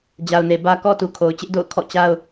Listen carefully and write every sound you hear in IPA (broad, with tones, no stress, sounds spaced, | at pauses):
d͡ʑ a˨ ʊ̯ n e˨ b ä˦ k ɔ˦ t u˨ kʰ o˨ ʊ̯ t͡ɕ ɪ˦ ʔ d o̰˦˨ ʊ̯ kʰ ɔ̰˦˨ t͡ɕ a˦ ʊ̯